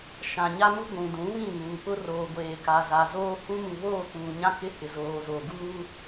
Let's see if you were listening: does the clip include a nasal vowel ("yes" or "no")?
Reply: yes